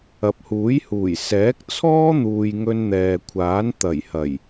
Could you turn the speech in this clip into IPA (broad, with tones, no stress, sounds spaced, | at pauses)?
ɐ˨ p̚ h uː˨˥ j h uː˨˩ j s ɛː˨˥ k̚ t͡sʰ ɔː˥ n̪ uː˨ j ŋ ɵ˧ n n̪ ɛː˨ kʷʰ aː˨˥ n t̪ ɐ˨˩ j h ɐ˨˩ j